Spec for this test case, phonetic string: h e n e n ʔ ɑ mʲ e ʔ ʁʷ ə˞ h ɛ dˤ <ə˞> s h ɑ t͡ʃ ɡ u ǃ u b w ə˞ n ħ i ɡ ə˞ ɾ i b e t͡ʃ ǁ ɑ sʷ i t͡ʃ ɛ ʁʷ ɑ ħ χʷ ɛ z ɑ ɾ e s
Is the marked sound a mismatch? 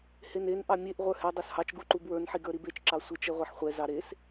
no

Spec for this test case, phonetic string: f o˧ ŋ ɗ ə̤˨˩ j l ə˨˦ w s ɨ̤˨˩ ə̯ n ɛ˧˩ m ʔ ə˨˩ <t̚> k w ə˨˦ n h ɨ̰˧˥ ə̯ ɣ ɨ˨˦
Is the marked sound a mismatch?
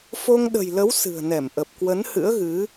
yes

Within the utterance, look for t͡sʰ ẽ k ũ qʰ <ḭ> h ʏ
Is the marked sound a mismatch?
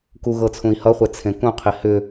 yes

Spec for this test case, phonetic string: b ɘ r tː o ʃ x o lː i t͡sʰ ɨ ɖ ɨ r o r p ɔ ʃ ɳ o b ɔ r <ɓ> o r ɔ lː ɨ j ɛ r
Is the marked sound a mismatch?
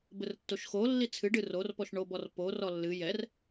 yes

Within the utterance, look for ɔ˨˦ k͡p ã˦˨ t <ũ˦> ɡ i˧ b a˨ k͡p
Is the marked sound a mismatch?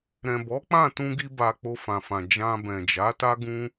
yes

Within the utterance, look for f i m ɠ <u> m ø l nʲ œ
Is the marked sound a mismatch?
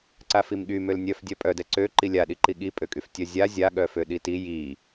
yes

